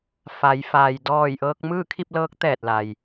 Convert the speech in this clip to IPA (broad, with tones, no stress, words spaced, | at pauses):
fa˩˧j faː˩jdɔː˧˩j ʔɤː˧k̚mɯː˥˨kʰi˥˨p̚lɤː˧˥k̚ t̪ɛː˧˩t̚la˩j